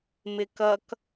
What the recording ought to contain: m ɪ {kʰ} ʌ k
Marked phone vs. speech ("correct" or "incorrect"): incorrect